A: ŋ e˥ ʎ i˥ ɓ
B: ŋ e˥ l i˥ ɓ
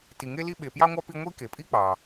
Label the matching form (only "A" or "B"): B